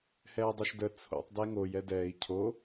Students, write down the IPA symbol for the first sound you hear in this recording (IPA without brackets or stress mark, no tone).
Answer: h